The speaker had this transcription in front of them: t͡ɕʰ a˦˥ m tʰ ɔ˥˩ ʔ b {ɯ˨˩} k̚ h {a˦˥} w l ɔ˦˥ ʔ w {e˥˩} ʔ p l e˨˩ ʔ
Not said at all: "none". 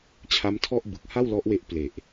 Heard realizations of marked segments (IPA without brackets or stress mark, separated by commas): ɯ˨˩, a˥˩, e˦˥